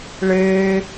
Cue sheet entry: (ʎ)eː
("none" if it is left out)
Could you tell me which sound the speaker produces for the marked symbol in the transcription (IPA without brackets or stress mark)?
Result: ɭ